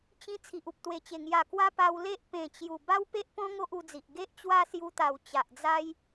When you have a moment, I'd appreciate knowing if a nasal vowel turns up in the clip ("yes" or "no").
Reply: yes